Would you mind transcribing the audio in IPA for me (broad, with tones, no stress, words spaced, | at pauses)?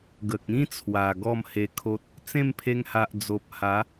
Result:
ɡə˨k̚ĩ˦t͡sʰwa˨˩ ɡɔ˥˧mhe˧kʰo˦t̚ | t͡sẽ˥˧mpʰe˧ŋha˨ʔ d͡zo˨p̚ha˨˦